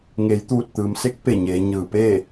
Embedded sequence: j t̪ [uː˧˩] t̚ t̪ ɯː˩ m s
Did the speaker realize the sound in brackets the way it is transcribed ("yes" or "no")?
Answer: yes